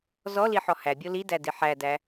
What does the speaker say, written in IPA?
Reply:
zɔliħɔ hæbʲo lidædi ħædæ

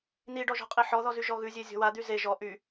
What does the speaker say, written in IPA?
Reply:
niɖɔʒɔ̤qʼi ħɔðɔzy ʒɔɣʉzʲe zʲɔ̤wa d̪yze ʒɔ ʔy

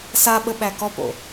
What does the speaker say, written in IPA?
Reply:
saɓə ɓækɔpo̰

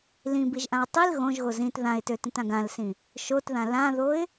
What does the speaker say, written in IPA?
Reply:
lĩbiʒʔãʊ̯ tˤil ɣõʒɣo zĩt ðãɪ̯tøtĩtãɡ ãlsĩ | ʃotðã lãðoɪ̯

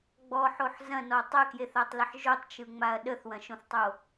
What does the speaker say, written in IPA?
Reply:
ɡ͡bɔħoħ zɐ̃nɔ tˤəkjeθatˤləħ ʒotˤt͡ʃɯŋ͡maɐ̯ ɗəθwɐ̃ʃõθtˤo

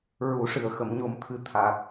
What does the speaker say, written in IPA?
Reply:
ɹu˨˩˦ʂɨ˨˩ə̯ xə˨˩˨mɲo˨˩mt̪ʰɨ˨˩ t̪ʰaː˨˩t̚

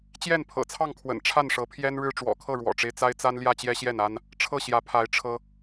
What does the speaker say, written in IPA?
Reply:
t͡ɕjɛ˥˨npʰɤ̰˨˩t͡sʰɑ˥˨ŋkʰwə̰˨˩n ʈ͡ʂʰa˥˨nʂɤ˨˦pʰjɛ˦n ɻɻ̩˦ʈ͡ʂwɔ̰˨˩kʰɤ˥˨ ɻwɔ̰˨˩ʈ͡ʂe˦ɪ̯t͡sa˦ɪ̯ t͡sa˦n ljä˥˨t͡ɕjɛ˦ɕjɛ˥˨n a˦n | ʈ͡ʂʰɤ˥˨ɕjä˨˦pʰa˨˦ɪ̯ ʈ͡ʂʰɤ˦

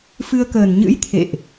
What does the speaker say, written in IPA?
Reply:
fɨ˧ə̯kəː˨˩n ɲɨ̰˧˥j t̪ʰḛ˧˨ʔ

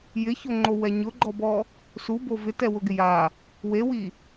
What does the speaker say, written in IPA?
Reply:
jɪçoŋ͡ǃowɛ ɲʊɡ͡ǃɔbɔ | subo vɪtɛwʊɡɪ ja | wewi

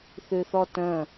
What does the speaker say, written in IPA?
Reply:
θʉθɔtə̃

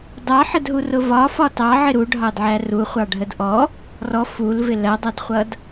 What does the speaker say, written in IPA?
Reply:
dɑħədɦurʊ vɒfɒ tɑʕɪ ɾuɖʱɑdʕæ ruχʷɑɖʱəd ʔɔ | rɔ fulvɪ lɜdˤɜdχʷʌd

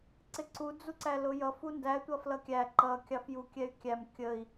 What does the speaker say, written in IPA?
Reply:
ǀɪǀu d͡zuǀælʊjʌf undæ tʷʌflʌkʲæ ǃʌ kʲɑfju kʲɛy̯kʲæm kʲəi̯

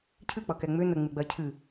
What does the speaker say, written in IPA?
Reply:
cʰɨk͡pʌkɛ ŋ͡mʏ nəŋ͡mɨɡ͡bɜ cʰɨ

